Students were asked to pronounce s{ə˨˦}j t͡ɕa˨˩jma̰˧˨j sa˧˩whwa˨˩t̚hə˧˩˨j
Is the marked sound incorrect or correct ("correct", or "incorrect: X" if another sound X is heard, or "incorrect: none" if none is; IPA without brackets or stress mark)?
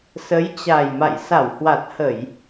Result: correct